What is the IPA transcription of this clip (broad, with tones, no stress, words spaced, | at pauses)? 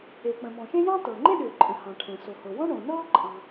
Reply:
e˩k͡pə̃˩mɔ̃˩ʃẽ˥ jɑ̃˥ tɤ˩ŋ͡ǃẽ˥ɗʏː˩ǃʼə̃˩ hɑ̃˩ʈʰɛ̃˩ so˩ho˩wɔ̃˥ ɳõ˩nɤː˥ǃʼɑ̃˩